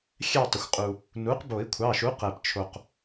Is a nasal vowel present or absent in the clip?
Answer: absent